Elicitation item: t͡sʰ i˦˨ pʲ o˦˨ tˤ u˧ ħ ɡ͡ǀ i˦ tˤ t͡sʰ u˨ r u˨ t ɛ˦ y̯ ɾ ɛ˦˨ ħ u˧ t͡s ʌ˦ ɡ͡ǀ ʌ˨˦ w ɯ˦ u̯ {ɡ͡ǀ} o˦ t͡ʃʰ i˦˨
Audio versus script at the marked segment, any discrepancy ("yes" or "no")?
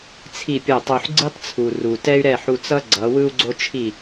no